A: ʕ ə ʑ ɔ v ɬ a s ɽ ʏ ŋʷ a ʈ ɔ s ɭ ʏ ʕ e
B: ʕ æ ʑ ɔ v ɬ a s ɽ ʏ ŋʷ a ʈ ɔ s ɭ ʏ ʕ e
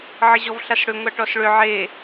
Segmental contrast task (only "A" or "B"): A